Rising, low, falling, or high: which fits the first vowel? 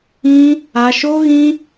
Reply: high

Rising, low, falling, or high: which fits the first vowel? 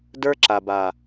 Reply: high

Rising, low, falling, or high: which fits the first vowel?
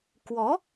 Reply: rising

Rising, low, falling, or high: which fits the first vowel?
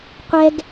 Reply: high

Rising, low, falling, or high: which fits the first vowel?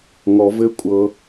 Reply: low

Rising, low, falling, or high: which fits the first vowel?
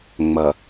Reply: low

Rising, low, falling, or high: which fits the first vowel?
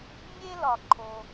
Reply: high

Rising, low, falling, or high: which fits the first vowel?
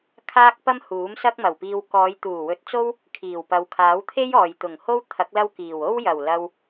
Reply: high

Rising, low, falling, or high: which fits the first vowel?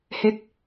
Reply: falling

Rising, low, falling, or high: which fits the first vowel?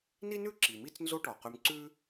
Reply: high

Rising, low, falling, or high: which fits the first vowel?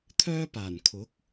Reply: high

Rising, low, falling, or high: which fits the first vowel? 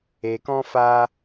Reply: low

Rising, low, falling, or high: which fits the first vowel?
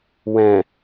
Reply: low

